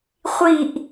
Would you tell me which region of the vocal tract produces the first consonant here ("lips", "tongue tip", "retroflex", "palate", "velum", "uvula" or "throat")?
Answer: uvula